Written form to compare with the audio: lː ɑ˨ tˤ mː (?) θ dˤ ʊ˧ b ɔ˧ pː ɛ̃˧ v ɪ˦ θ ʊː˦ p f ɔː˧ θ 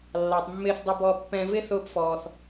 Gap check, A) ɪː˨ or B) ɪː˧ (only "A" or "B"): B